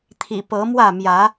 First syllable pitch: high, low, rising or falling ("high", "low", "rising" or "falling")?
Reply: low